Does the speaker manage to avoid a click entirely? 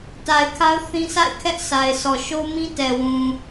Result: yes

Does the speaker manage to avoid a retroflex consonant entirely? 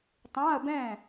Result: yes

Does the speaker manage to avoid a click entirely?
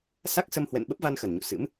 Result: yes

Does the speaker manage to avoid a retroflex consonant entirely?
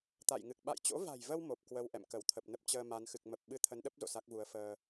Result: yes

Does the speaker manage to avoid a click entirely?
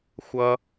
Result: yes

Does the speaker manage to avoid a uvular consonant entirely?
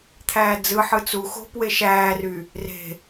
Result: yes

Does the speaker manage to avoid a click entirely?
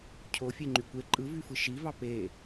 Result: no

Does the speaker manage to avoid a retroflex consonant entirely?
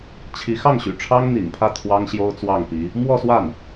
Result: no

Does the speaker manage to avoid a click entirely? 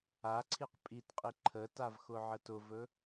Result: no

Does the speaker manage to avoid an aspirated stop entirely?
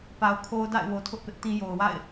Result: no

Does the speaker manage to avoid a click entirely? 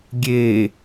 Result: yes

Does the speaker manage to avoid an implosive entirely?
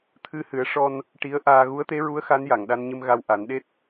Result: no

